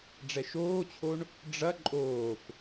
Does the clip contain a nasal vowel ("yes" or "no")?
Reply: no